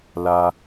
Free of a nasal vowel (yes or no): yes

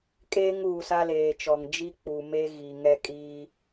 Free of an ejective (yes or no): no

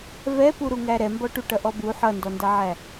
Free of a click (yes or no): yes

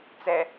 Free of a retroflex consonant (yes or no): yes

